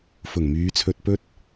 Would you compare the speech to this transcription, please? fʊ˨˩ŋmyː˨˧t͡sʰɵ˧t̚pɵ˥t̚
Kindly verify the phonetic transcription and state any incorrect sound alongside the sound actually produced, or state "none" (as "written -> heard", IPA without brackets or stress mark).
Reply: none